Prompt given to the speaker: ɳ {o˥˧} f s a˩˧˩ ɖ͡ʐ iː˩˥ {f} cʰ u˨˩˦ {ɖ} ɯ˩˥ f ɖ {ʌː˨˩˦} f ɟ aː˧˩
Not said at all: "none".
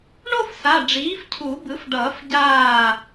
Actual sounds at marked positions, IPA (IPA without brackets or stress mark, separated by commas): o˥˧, f, b, ʌː˨˩˦